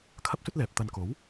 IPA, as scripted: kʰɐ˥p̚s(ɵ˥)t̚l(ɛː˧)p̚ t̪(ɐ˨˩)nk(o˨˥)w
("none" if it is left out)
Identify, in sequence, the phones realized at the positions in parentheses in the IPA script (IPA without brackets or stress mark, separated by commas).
ɵ˥, ɛː˨, ɐ˨, o˨˥